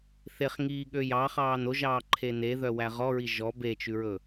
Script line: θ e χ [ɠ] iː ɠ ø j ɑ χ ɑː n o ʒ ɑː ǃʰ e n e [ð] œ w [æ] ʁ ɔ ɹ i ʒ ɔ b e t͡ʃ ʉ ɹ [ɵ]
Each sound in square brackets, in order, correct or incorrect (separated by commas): incorrect, correct, correct, correct